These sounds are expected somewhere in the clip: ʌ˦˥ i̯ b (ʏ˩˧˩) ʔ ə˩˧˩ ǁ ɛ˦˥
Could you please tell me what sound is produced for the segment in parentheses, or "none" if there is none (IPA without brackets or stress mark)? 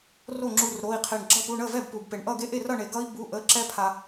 u˩˧˩